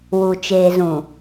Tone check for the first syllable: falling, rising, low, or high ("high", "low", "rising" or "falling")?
low